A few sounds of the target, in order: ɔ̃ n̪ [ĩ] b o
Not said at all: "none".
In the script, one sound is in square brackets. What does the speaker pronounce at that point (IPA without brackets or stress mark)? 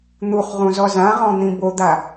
ĩ